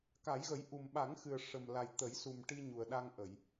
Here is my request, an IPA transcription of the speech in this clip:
k a˨˩˦ j ɣ ə˨˩˦ j ʔ u˨˩ m ɓ a˨˩˦ ŋ x ɨ˨˩ ə̯ ʂ ə˨˩ m l a˨˩ j t̪ ə˨˩˦ j s u˨˩ m ʈ i˧ ɲ u˨˩ ə̯ ɗ a˧ ŋ ʔ ə˨˩˨ j

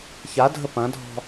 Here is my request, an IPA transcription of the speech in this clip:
ç a dʱ ə p ɐ̃ dʱ ɔ̤

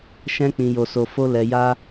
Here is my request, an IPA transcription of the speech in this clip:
ʃ ɛ̃˦ k͡p ĩ˧ j o˧ s o˧ f o˦ l ɛ˧ j a˦

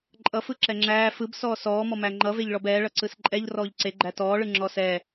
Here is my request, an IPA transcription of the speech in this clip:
ǃʼ ʌ f ɯ ǁ ɛ ŋ͡ǁ æː f ɯ b s ɔː s ɔː m ɔ m æ ŋ͡ǃ ʌ v e ʎ ɭ ɔ b ɛː ɭ ʌ ǀ ɯ s ǃʼ ɛ ʎ r ɔː ʎ ǀ e ɡ͡ǃ æ t ɔː ɭ ɯ ŋ͡ǁ ɔ s ɛ

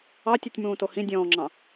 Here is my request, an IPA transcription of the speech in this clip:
ɑ tʲ u tʲ m ũː t o h ĩ dʲ ɔ̃ː ŋ͡ǁ ɑ̃

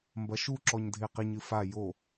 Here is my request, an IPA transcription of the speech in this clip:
m b ɐ ʃ u ǁ ɔ ɲ dʱ e q i ɲ ɨ f a j o

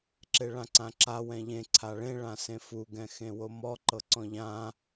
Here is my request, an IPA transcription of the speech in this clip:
ǁ e ɭ ã ǀ ã ǁ a w ɛ̃ ʎ ẽ ǀʰ a ɭ ẽ ɭ ã s ẽ f u ɡ ɛ̃ x ẽ w o m ɔ ǃ ɤ ǀ ɔ̃ ʎ ã

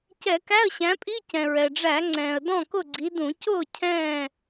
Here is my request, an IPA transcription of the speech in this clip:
c ɛ˧˩˧ k æ˧˥˧ ə̯ ɕ æ̃˨˦ pʼ i˧˥˧ c ɛ̃˩ ɹ ɛ˩ ɖ͡ʐ æ˧˩˧ ŋ͡ǀ ɛ̃ː˩ ə̯ d ɔ̃˥˨ k ʊ˥˨ ɡ͡ǀ i˨˦ d ũ˧˩˧ c ʊː˥˨ cʰ ɛ̃ː˥˨

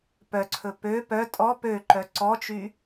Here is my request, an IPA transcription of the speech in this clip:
p œ ǀʰ ɵ p ø p œ tʼ ɔ p ø ǃ œ ǀ ɔ t͡ʃ y

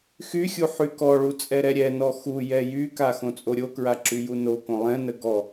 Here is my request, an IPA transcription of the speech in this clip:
x y xʲ u ħ y k ɔ ɭ u t͡sʼ ɛ ɾ ɛ ɾʲ ɛ n ɔ x u j ɛ j y k a x õ t͡sʼ o ɾʲ o k ɹ a ǁ y j u n o k õ lˠ ɛ̃ n ə ɡ ɔ

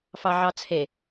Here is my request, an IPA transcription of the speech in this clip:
f ɑ ʕ ɑ t͡sʰ e

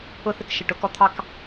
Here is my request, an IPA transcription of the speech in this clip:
ʊ˦ θ ɪ˦ k ʃ ɪ˨ ʈ ʊ˨ k ɔ˦ t̪ʰ ɑ˦ k

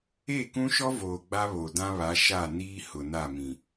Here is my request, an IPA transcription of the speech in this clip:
e˦˨ k ũ˦ ʃ ɔ˦ v oː˨ ɡ͡b a˦ β o˨ d ã˦ β a˨˦ ʃ a˦˨ n iː˦ h ʊ˨ n a˦˨ m ĩ˨

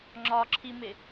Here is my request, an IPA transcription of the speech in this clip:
ŋ͡ǁ ɒ ǁʰ i m ɪ

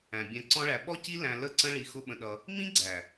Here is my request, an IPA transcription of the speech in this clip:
æ̃˨ bʲ æ̃˧ ǀ ɔ̃˦ ɭ æ˧ ɓ ɔ˦ c i˦ l æ̃˧ l ə˦˨ ǀ ə̃˦ ɭ i˧ x ʊ˦ ɓ ə̃˧ ɗ ʌ˧ | m ĩ˦ ɡ͡ǀ æ˨

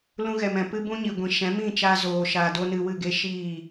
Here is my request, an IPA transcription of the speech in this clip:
l ũ˧ ɣ ɛ˨ m ɛ̃˨ p ɨ˦ b ũ˦ ɲ i˨ ɡʷ ĩ˨ ʃ ɛ̃˨˦ m ĩ˦˨ t͡ʃ aː˧ z oː˨ ʃ aː˨ d o˦ n ɨ˧ w ɨ˦˨ ɡ e˦ ʃ iː˦˨

